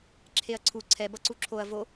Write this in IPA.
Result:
ǁʰ e ɐ̯ ǀʰ u ǀʰ ɛ b ʌ ǀ u ǁʰ o ɐ̯ v o

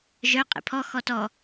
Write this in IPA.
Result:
ʒ œ qʼ ḛ pʰ ɔ x ɔ t ɔ

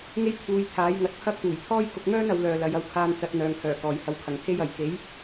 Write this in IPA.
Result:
ŋ e˥ j t̪ʰ uː˧ j t̪ʰ aː˨˥ j ŋ ɐ˨˥ t̚ pʰ ɐ˥ k̚ t̪ uː˨˩ j t̪ʰ ɔː˥ j k ʊ˧ k̚ ŋ œː˥ n ɐ˨˥ w l œː˧ l ɐ˨˧ j ɐ˨˧ w kʰ aː˧ n t͡s ɐ˧ t̚ n̪ œː˨ ŋ h œː˨˩ k ɔː˨ j h ɐ˧ w kʰ ɐ˨ ŋ t̪ʰ e˥ j ɐ˨ j k e˨˥ j

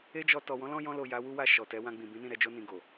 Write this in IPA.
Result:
e˦ d͡ʒ ɔ˧ t ɔ˨ w ɔ̃˨˦ l ɔ̃˦ j ɔ̃˧ l o˨ j a˨˦ w u˦ w a˦˨ ʃ ɔ˨ t ɛ˨˦ w ã˧ ɡ͡b ĩ˨ b ĩ˨˦ n ĩ˦˨ ɾ ɛ˨˦ d͡ʒ o˦ n ĩ˧ ɡ o˨

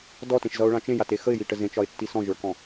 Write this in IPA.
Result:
d ɔ t ẽ ʃ z ʌ ʊ̯ ɭ ã t͡ʃ ẽ j a t e x ə ɪ̯ j i ʈ ə z ẽ t͡ʃ ɒ ɪ̯ tː i s ɔ̃ ʒ ə˞ k ɔ̃

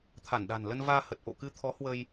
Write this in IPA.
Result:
t̪ʰ a˧˩ n ɗ a̤˨˩ n l ə˧ n v aː˧ h ə˨˩ t̚ ʔ o̰˧˨ k ɨ˧ t̪ʰ ɔ˨˦ h w ə˧ j

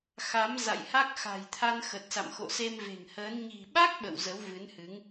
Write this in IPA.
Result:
x a˨˦ m z a̰˧˨ j h a˦˥ k̚ x a̤˨˩ j t̪ʰ a˧ n x ə˨˩ t̚ s a̰˧˨ m x o̰˧˨ s e˧ m v e̤˨˩ ŋ h əː˨˦ n ɲ i̤˨˩ ɓ a˦˥ k̚ ɓ ə̰˧˨ w z ə˨˦ w v ɨ˨˦ n h ɨ˨˦ ŋ

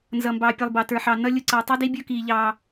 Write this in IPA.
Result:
n z ʌ˨ m b ɑː˨ pʲ ʌ˨ lˠ b ɑ˨ t ə˞˨ ħ ɑ˨ n ʌ˦ lʲ ʊ˦ ǀ ʌː˨ tˤ u˦ d i˦ bʲ ʊː˦ k iː˨ ʎ ɑː˨

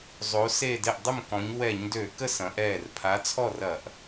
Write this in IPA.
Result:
zˤ o˩˧ s e˧˩ d e˧˩ ʔ dˤ ʏ˥˨ m k ɔ̃˩˧ ɲ w ɛ˧˩˧ ɲ d ø˧˩˧ k ə˥˨ s ɐ̃˩˧ ʔ ɛː˧˩ r pʰ a˨˥ t͡sʰ ɔ˥˨ r ɐ˧˩˧ ʔ

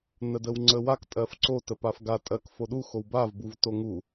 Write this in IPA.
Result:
n ə d ə w ŋ͡ǀ ə w a k tʼ ɜ f ǀ o t ə p a f ɡ a tʼ ɜ k f o ɗ u x o w b a v b u v t o ŋ u

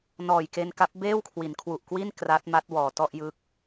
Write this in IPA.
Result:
n ɔː˨˩ j k e˧ n k a˦˥ p̚ b eː˥˩ w kʰ w i˩˦ n kʰ w u˨˩ ʔ k w i˥˩ n k r a˦˥ t̚ m a˦˥ t̚ w ɔː˨˩ t ɔ˥˩ ʔ j ɯː˦˥ k̚

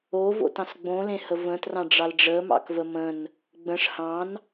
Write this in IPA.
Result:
o v o̰ t ɑ̃ s ɡ͡b õ l ẽ h ə v ə̃ t r ɑ̃ ɖ͡ʐ ɑ l ɖ͡ʐ ə m ɑ̰ k v ə m ə̃ n | ɡ͡b ə̃ ʂ h ɑ̃ n

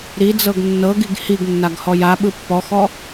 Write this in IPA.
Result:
ɾ i d͡z ɤ ɡ nː ɤ ɡ i ɡ h i ɡ nː a ɡ h ɔ j a ɓ ɯ pː ɔ x ɔ

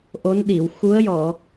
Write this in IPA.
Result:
ʔ o˧˥ n ɗ i˨˩˨ w x u˧˥ ə̯ j ɔ˨˩˨

